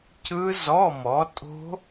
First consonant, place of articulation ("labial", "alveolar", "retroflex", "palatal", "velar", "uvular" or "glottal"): palatal